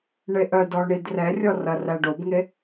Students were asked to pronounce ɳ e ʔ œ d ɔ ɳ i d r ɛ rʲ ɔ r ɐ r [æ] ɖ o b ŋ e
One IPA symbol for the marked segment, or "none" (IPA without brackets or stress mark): æ